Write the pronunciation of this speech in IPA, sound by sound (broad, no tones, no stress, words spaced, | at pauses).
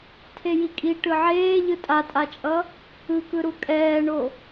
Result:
tʰejikʼi ʈɯʕeː ʎɯtʼatʼat͡ʃʼʌ | ɯkɯɾu kʼɛːɳo